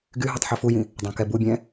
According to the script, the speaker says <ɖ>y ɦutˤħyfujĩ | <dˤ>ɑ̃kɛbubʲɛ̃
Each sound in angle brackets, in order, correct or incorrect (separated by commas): incorrect, correct